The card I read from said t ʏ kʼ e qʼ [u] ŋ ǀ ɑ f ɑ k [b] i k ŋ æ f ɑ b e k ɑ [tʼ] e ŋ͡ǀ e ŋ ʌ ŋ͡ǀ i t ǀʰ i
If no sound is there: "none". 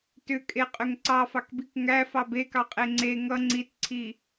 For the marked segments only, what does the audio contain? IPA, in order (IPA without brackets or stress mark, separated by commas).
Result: ʏ, b, qʼ